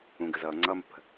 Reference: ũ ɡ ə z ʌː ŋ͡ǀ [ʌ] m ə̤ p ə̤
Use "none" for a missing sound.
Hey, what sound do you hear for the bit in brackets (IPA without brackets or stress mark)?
ʌ